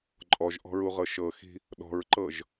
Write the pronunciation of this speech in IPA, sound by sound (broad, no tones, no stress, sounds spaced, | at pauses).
ǃʼ ɔ ʒ ʔ ɔ̤ ɹ u ʁ ɤ ʃ ɤ x i̤ | ɗ ɔ̤ ɹ ǃ ɤ ʒ